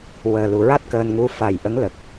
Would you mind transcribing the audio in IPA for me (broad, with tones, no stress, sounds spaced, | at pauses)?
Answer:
w əː˨˩ l u˨˩ ɹ a˦˥ t̚ k əː˧ n ŋ u˧ f a˨˩ j ʔ ə˧˥ ŋ l ə˨˩ k̚